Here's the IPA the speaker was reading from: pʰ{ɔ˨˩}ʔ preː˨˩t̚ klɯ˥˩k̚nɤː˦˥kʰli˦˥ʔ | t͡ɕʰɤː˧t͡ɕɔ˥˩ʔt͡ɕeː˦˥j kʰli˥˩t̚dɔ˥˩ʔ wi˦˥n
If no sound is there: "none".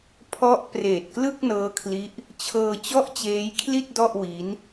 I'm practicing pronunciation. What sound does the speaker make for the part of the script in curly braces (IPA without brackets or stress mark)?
ɔ˦˥